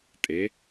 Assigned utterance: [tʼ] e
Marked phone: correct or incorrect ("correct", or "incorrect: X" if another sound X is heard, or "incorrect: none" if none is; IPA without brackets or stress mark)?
correct